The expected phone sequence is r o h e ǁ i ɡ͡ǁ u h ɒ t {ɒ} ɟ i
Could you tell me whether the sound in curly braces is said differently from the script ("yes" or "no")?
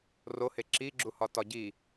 no